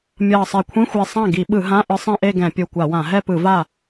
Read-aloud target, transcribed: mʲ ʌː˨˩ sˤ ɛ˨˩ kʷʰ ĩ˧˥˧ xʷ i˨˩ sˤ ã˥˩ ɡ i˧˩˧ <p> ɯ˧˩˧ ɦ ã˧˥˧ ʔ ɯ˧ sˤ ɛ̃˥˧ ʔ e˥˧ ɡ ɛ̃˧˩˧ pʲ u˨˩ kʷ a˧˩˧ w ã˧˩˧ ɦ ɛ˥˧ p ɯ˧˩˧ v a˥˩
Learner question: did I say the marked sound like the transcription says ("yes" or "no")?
no